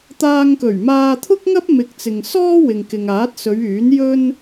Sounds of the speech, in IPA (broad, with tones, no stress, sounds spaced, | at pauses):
t̪ aː˧ ŋ k ɵ˨˩ ɥ m aː˧ t̪ʰ ʊ˥ k̚ ŋ ɐ˥ p̚ m ɪ˧ k̚ t͡s ɪ˨ ŋ s ɔː˥ w ɪ˨ ŋ k ɪ˨ ŋ aː˨˥ t̚ s ɵ˨˧ ɥ yː˨˥ n j ɵ˥ n